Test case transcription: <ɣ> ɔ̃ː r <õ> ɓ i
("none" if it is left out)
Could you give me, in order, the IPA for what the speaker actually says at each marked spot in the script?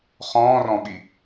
χ, ɔ̃

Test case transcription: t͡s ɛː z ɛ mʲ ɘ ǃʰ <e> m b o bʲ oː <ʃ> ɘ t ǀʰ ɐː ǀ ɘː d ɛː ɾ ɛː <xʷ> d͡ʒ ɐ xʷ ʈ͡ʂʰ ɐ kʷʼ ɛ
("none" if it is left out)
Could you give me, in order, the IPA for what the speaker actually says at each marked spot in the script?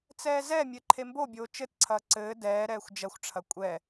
e, t͡ʃ, xʷ

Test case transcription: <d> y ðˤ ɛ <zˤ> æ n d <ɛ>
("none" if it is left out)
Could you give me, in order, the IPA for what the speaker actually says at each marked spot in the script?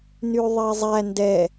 n, zˤ, ɛ

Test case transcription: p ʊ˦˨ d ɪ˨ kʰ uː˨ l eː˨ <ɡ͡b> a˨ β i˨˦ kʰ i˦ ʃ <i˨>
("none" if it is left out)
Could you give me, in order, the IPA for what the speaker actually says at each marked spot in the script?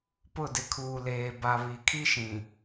b, ĩ˨

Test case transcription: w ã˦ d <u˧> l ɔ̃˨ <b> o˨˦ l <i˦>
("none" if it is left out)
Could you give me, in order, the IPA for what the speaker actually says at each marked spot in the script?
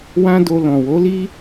o˧, w, i˦

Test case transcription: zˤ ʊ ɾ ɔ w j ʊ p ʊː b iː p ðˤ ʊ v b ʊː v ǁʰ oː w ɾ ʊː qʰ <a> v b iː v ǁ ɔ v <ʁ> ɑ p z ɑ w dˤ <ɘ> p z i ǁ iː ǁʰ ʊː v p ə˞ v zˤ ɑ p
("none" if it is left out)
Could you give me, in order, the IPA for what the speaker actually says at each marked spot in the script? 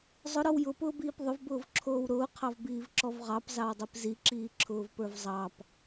ɑ, ʁ, e

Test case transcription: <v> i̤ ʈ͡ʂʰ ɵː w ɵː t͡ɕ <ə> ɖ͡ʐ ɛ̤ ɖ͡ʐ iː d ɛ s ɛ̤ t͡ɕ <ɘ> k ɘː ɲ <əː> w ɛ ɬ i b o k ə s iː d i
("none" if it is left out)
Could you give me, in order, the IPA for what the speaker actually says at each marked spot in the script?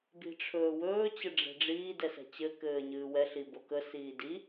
b, ə, ɘ, ɨː

